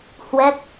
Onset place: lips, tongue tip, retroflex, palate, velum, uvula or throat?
throat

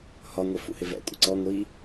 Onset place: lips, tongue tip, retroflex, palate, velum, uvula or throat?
throat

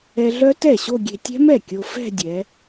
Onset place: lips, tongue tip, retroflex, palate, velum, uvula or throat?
tongue tip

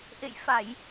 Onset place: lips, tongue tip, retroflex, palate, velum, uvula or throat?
throat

